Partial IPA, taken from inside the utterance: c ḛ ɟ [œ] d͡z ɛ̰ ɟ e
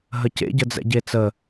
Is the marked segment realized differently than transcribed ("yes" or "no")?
yes